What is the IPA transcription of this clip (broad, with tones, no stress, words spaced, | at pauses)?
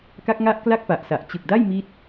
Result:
ka˦˥k̚ŋa˦˥ʔ kla˥˩k̚pa˨˩ʔsa˨˩ʔ t͡ɕɯ˨˩k̚ da˥˩j mi˦˥t̚